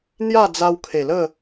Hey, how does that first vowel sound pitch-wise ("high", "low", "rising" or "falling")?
falling